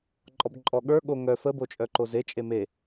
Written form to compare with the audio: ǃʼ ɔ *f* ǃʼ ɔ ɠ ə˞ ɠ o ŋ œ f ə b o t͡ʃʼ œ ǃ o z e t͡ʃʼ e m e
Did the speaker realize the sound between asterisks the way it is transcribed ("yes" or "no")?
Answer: no